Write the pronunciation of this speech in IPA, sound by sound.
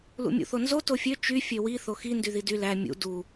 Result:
l ṵ mʲ ṵ θ o n z o t o fʲ ø t͡ʃ y fʲ ø w i θ o x i n d y ð i d y l æ mʲ ṵ d u

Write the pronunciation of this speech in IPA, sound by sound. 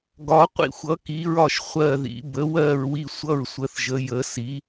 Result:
ɡ ɒ˩˥ qʷ ḭ˥˩ xʷ ʌ˩˥ k i˩˥ ɹ ɒ˥˩ ʃ χʷ ɜ˥˩ ð ḭ˩˥ b ə˩˥ w ɜ˥˩ ɹ w i˥˩ sʷ ʌ˥˩ ɹ sʷ ə˩˥ θ ʒ ə˩˥ j ə˩˥ s i˩˥

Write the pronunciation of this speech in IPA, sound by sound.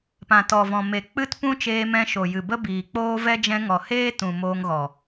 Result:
p ã˨ t ɔ˨ v ɔ̃˨ m e˨ k͡p ɨ˦ t p ũ˦ t͡ʃ eː˧ m ɛ̃˧ ʃ o˨ j ɨ˨ b ə˦ b iː˨ k͡p oː˦ v ɛ˦ d͡ʒ ɛ̃˧ ŋ ɔ˨ h eː˦ t ũ˨ m oː˧ ŋ ɣ ɔ˨

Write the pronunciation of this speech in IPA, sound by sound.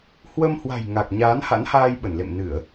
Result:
h w ə˧ m h w a̤˨˩ j ŋ a˨˩ k̚ ɲ aː˨˦ n h a̰˧˥ n h aː˧ j ɓ ə˧˩ n l ḛ˧˨ m n ɨ˧˩˨ ə̯

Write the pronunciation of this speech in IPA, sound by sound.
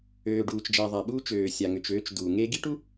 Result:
øː˨ ɖ uː˨ t͡ʃ d͡ʒ a˨ ðˤ a˨ ɓ uː˦ t͡ʃ øː˨ sʲ a˨ ŋ ʏ˨ t͡ʃ øː˨˦ t͡ʃ d uː˨ ŋ e˦ ɡ i˦ ʈ u˦

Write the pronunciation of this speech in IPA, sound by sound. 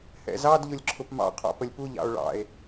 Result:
h ɛ̰ z ɑ d ʎ ʊ lʲ ǁʰ ʊ p m ɑ̰ qʰ ɔ̰ p ə lʲ p u ʎ ɑ̰ o̯ ɭ ɑ̰ e̯

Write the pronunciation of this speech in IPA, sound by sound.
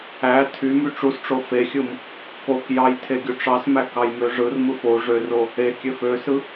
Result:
æ tʰ y m y ʈ͡ʂ u s ʈ͡ʂ o f e xʲ ɯ m | k o k j ɑ j tʰ e ɡʲ u ʈ͡ʂ ɑ s m æ k ɑ j m ø ʐ ɯ r m ɯ f o ʐ ø r o | e kʲ ø f ø s ɯ

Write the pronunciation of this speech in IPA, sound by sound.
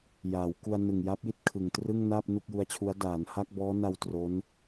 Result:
j aː˩˦ w k u˧ a̯ n ɯ˨˩ ŋ j a˦˥ p̚ j i˥˩ t̚ kʰ ɯ˨˩ ŋ t r ɯ˥˩ ŋ n aː˥˩ p̚ n u˥˩ k̚ j u˦˥ a̯ t͡ɕʰ u˦˥ a̯ d aː˩˦ n h a˥˩ k̚ b ɔː˦˥ n a˧ w t r o˦˥ n

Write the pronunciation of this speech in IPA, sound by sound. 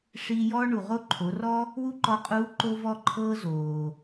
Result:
ʂ iː˧ j ɔː˥ ɳ u˩ ʁ o˥ ǃʰ o˩˧ r ɔ˥ | w u˥ ǃ ɔ˧˥ qʼ uː˧˥ ǃ o˧ v ɔ˧ ǃʰ ɤː˧ z oː˩

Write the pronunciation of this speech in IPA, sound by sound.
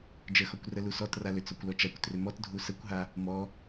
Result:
d͡ʒ ə x ɔ kʷ r ə l u s ɔ t r a l ʏ t͡s ɔ kʷ l ɔ t͡ʃ a kʷ t r ʏ m ɔ t dʱ u s ə kʷ ɦ a | m ɔ

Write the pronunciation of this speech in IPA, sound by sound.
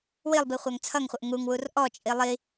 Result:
w i lˠ b i χʷ æ ŋ t͡sʰ ʌ ŋ χʷ ə ʔ ŋ u ŋ w u r ʔ ɔ t͡ʃʼ i lˠ i

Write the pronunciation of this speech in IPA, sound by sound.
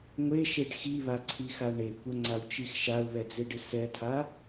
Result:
ŋʷ e ʃ e ɖ x i β a ǀʰ i x a ɳ e kʷ ə ŋ͡ǀ a w t͡ʃ i x ʃ a ʊ̯ β ɛ d͡z e ɖ ɪ s ɛ tʰ a

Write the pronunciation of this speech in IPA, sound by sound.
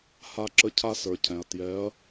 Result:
h a˦ ǁ ə˦ cʰ a˦ s ə˞˩ cʰ ɛ̃˩ ɐ̯ t j ɛ˨˥ ɐ̯

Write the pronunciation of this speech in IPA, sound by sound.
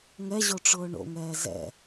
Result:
ŋ ɛ ʑ o ʈ͡ʂ ʊː ɳ o̰ ŋ ɛː z ɛ̰

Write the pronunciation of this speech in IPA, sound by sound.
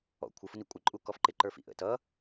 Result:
ɔ̰ kʷʰ ɪ f ʊ n i kʷʼ ɪ ǃʼ u k ɔ f ǃ ɪ ǃ ə˞ f ḭ ʔ ə̰ t ʌ

